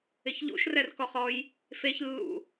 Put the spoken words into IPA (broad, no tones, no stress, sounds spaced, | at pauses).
ɪ ç ʎ ṵ ʃ r ɛ r k ɔ χ ɔ j | f e ç lː ṵ